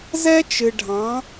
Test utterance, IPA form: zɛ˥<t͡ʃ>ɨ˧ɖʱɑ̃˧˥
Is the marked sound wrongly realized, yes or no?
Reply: no